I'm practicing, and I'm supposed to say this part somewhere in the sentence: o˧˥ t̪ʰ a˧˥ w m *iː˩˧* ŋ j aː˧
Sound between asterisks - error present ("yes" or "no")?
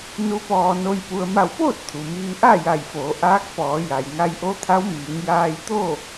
no